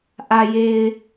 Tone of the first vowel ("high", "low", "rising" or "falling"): low